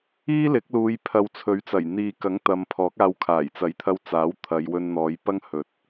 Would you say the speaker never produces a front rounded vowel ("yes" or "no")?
yes